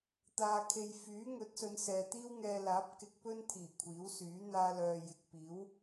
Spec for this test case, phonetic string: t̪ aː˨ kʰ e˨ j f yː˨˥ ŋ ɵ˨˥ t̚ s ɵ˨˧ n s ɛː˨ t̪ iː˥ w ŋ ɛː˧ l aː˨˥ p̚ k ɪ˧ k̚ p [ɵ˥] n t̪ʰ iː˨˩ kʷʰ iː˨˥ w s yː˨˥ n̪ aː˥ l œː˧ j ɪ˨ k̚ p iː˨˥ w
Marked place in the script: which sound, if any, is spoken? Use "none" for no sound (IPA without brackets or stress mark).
ɵ˥